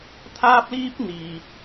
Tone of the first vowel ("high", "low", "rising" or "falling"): high